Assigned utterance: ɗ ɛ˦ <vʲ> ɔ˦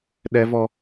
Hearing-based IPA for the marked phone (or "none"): v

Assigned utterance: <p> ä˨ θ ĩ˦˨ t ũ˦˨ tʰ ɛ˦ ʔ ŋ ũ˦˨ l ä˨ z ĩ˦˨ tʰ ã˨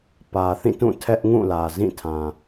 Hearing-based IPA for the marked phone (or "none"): p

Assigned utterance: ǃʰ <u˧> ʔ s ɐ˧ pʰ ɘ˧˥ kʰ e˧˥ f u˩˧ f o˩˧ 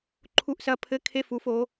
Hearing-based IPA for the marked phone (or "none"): u˧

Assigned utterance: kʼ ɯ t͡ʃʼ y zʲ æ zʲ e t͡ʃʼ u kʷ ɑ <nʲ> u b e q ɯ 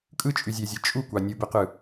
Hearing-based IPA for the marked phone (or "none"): nʲ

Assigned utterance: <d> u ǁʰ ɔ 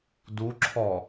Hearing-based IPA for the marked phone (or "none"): d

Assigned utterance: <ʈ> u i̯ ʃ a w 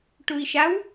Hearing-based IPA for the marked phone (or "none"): ʈ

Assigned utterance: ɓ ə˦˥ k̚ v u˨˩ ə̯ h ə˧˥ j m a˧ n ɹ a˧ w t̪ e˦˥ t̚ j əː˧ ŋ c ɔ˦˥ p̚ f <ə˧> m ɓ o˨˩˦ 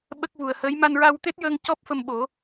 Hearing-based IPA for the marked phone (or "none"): ə˧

